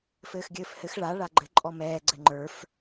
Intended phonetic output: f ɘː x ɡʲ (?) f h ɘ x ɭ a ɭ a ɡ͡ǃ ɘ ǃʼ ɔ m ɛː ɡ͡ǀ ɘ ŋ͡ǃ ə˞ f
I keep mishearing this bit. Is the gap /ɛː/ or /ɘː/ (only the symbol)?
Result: ɘː